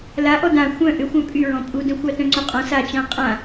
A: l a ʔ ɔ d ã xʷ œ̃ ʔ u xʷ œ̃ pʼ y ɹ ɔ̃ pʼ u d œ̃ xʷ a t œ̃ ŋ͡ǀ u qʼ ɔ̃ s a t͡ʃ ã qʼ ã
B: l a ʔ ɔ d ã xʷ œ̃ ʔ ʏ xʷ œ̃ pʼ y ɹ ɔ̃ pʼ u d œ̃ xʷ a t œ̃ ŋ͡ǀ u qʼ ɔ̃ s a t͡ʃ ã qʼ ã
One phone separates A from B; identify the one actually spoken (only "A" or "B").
B